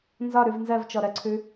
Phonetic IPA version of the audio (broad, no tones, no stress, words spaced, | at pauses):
nzɒɾʉv nzɜvt͡ʃɔɾɜǀʰʉ